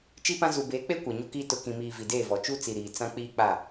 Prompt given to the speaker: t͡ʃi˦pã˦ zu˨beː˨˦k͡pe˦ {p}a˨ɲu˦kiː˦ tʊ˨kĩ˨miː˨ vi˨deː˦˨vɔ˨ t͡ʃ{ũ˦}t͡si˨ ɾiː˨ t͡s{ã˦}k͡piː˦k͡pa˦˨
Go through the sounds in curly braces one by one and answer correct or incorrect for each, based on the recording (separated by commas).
incorrect, incorrect, correct